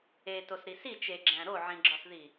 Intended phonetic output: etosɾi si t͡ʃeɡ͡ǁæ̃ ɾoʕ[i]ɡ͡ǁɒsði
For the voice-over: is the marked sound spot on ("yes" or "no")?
no